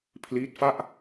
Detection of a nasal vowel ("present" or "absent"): absent